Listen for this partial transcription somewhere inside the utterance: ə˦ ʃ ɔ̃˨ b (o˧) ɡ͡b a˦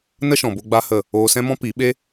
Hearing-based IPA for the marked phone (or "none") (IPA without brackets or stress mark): o˧